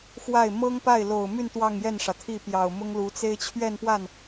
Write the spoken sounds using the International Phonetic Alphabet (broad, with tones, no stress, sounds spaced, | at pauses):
x w a˥˩ ɪ̯ m ɤ˥ ŋ p a˥˩ ɪ̯ l o˨˩ ʊ̯ m y˥˧ n t̪ w ɑ˥˧ ŋ j ɛ˥˩ n ʂ ä˩ t̪ʰ i˥˩ p j ɑ˨˩ ʊ̯ m ʊ˥ ŋ l u˧˥ t͡s e˥ ɪ̯ t͡ɕʰ ɥ ɛ˥˧ n p w a˥˩ n